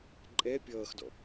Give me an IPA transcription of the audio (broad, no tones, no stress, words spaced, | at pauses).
ǃʼɛ pʲʌːxdɔ̰